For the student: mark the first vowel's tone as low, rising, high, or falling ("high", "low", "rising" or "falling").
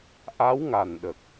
rising